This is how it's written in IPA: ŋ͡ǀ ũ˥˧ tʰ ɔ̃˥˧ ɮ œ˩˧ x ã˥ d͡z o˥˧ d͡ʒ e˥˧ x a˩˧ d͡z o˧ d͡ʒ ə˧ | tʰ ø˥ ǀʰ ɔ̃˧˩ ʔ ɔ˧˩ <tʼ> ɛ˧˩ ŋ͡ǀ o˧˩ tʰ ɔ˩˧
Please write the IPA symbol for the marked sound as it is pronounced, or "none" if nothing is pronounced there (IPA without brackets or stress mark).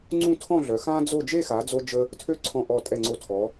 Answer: tʼ